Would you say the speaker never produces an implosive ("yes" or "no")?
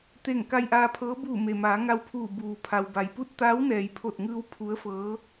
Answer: yes